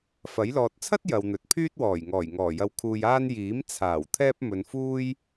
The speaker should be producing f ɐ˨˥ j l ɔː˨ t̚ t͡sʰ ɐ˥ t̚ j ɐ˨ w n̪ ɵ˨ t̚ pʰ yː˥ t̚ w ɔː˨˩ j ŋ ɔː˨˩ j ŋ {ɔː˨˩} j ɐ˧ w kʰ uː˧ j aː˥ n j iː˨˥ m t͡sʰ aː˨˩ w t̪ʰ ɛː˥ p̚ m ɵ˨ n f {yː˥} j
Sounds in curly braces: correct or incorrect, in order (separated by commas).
correct, incorrect